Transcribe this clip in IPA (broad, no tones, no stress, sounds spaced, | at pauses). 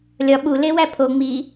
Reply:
lʲ ɒ ɓ u l e w æ pʰ o ŋ͡m i